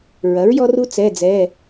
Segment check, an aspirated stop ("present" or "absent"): absent